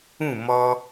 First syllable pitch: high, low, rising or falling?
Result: falling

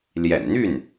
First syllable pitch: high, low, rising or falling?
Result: low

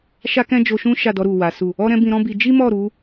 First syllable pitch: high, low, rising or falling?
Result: high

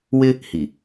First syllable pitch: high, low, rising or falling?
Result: high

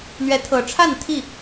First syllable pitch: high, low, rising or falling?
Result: rising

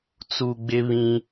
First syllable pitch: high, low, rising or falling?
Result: low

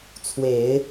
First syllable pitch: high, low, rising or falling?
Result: low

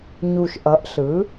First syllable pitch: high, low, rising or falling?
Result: low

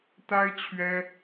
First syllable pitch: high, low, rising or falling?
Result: high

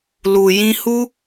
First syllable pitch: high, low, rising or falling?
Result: low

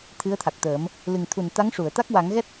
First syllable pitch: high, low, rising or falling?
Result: rising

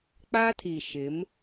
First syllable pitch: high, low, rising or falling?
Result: high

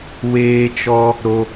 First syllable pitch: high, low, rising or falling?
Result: high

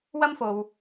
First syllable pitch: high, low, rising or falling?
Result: high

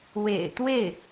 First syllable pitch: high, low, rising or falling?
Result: low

